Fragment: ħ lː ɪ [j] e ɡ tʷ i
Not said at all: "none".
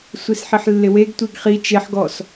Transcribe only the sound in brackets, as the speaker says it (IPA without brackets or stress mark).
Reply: w